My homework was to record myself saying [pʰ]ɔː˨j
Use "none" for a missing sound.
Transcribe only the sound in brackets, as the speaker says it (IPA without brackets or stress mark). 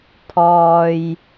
pʰ